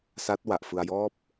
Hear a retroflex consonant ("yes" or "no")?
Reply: no